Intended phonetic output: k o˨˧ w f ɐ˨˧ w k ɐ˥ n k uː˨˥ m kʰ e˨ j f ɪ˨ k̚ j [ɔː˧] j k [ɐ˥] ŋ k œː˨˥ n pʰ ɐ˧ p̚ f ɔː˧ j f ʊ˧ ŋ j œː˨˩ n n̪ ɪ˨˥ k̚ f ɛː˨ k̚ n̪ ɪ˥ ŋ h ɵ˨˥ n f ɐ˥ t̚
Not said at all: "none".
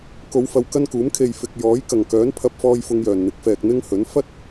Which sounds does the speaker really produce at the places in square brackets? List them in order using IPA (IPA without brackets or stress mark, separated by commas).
ɔː˨˥, ɐ˨˩